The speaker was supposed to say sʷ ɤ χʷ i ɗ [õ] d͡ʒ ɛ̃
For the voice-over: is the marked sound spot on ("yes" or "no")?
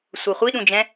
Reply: no